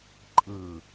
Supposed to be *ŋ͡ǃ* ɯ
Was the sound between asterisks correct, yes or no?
no